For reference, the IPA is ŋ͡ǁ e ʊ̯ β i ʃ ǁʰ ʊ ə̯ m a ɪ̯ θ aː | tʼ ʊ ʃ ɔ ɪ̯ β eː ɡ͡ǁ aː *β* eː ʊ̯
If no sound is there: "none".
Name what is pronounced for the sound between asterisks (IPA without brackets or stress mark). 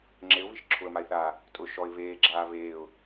β